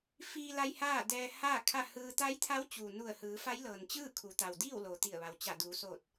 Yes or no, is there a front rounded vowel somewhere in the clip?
no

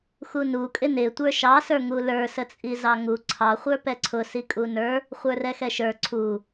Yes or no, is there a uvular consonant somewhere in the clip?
yes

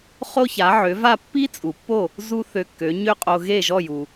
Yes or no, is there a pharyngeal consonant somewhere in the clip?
yes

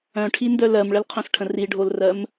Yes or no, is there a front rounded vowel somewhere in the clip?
yes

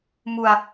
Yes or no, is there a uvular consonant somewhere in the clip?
no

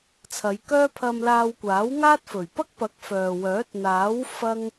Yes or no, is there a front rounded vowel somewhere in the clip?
yes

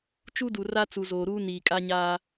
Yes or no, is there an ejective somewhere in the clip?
yes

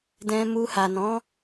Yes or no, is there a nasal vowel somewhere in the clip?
yes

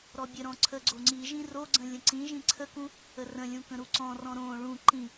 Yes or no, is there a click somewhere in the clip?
yes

